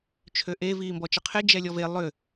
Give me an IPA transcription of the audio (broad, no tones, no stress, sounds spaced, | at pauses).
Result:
t͡ʃʰ ø ʔ e v iː m b ɔ t͡ʃ ə qʰ e d͡ʒ ɛ lʲ ɔ v e lˠ ʏ